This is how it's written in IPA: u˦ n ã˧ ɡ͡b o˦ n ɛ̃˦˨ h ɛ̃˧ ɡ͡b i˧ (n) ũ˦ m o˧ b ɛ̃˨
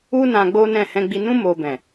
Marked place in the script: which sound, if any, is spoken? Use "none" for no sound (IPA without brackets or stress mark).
n